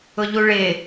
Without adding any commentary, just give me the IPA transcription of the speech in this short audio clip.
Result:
ʊ ʎ u ɭ ɪ

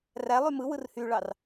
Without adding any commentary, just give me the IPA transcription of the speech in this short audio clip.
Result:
r æ lˠ y m ɯ w ɯ r h y ɭ ɑ r

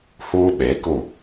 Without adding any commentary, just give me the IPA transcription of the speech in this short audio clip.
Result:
h uː˦ ɓ e˨˦ k u˦˨

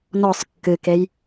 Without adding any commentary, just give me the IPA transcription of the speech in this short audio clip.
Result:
n ɔ sˤ kː ɨ k e j

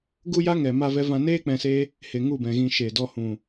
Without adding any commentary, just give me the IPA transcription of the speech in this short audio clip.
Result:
ɡ u˦ j a˦ ŋ ɛ˨ m a˦ v ɛ˦ v ã˦ n eː˦ k͡p ɛ̃˧ s e˦ | h e˨ ŋ u˦˨ b ɛ̃˨ ɣ ĩ˧ ʃ e˨ d ɔ˧ h ũ˨

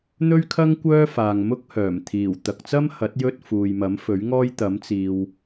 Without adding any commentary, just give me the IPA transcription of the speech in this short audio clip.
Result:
n̪ ɵ˥ ɥ kʰ ɐ˥ ŋ kʷ œː˥ f aː˨ ŋ m ʊ˥ k̚ h œː˨˩ m t̪ʰ iː˨˩ w t̪ ɐ˨ k̚ t͡s ɐ˥ m h ɐ˨˥ t̚ j ɵ˥ t̚ f uː˨ j m ɐ˨˥ m f ɵ˨˥ ɥ ŋ ɔː˥ j t̪ ɐ˨˥ m t͡s iː˨ w

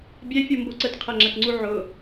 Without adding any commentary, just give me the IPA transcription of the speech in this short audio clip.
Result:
bʲ ɛ fʲ u m b o ǀ ə t qʰ æ ŋ͡ǁ æ t ŋ͡ǀ u ʕ ʊ

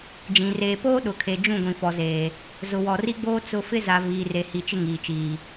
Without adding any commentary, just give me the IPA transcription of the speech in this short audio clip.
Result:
d͡ʒ ĩ˨ r eː˨ p oː˦ ɗ ʊ˨ kʰ e˨ d͡ʒ ũ˦˨ ɡʷ ĩ˨ f ɔ˨ z eː˨ | z ʊ˨ w ɔ˨ r i˦ ɡ͡b oː˦ t͡s ʊ˦ f ɪ˦ z a˨ v iː˨ r e˨ h i˨ t͡ʃ ɪ˦ ŋ iː˨ t͡ʃ iː˨

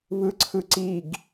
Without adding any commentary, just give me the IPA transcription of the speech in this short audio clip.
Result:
β ɯ ǀʰ ɯ ǀ i ɡ

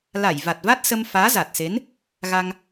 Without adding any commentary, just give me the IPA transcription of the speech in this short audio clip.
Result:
l a˧˩ j v a˨˩ t̚ v a˦˥ t̚ s ə˧ m f aː˨˦ z a˨˩ t̚ s e˨˦ n | ɣ a˧ ŋ

